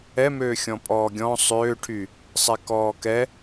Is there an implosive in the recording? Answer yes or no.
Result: no